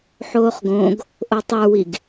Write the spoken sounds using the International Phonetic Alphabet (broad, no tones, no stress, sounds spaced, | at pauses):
ħ oː χ ɡ õ ɡ | ʔ o tˤ ə˞ w i ɡ